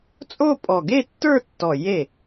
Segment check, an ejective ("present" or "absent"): present